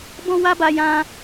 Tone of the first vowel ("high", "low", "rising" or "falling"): high